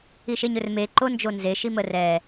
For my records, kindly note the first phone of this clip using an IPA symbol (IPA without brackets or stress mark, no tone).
i